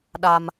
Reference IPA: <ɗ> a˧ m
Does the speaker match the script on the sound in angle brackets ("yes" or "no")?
yes